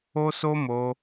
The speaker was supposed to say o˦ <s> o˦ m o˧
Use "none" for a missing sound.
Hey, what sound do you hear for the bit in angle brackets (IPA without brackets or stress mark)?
s